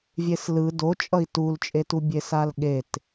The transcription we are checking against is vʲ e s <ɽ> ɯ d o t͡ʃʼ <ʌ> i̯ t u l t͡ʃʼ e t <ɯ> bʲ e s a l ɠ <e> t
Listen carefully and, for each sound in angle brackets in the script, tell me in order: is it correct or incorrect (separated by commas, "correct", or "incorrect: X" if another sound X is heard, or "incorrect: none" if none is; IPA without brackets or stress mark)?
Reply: incorrect: l, correct, incorrect: u, correct